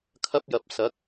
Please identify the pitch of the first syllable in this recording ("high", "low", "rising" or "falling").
high